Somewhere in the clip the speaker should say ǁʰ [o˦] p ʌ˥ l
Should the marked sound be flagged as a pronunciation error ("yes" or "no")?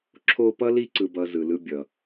no